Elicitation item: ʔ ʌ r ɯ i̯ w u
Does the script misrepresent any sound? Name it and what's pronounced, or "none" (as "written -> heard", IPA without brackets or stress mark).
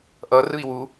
none